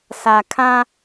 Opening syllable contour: low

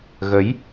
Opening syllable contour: rising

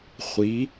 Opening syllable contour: rising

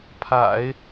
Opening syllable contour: low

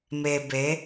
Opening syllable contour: low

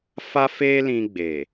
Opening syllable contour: high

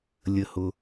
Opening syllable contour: low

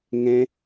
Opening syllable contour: high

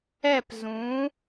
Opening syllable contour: falling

